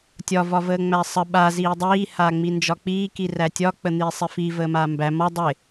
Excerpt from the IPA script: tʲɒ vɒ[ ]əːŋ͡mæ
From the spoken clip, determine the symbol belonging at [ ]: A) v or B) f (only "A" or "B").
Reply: A